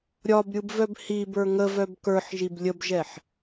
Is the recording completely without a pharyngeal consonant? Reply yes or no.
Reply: no